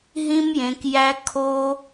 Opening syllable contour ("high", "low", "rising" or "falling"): high